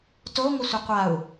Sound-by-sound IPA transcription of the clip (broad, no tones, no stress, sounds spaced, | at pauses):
t o ŋʷ ə sʷ ə qʷ a u̯